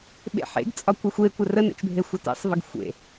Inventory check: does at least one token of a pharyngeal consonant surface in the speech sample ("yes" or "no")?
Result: yes